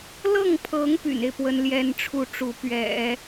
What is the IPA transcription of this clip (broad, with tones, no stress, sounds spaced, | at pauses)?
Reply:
l ɤ˥˩ ŋ pʰ ɤ˧˥ ŋ p y̰˨˩ n e˦ ɪ̯ p w ə˥ n l j ɛ˥ n ʈ͡ʂʰ u˥ ʈ͡ʂ u˧˥ p ɥ ɛ̰˨˩˦